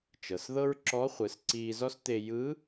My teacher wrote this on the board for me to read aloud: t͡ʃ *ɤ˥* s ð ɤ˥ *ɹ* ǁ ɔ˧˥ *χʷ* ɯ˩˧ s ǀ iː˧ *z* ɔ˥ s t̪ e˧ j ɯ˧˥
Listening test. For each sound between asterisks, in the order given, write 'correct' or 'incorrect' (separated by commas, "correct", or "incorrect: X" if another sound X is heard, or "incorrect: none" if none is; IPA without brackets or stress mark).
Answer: incorrect: ɤ˩, correct, correct, correct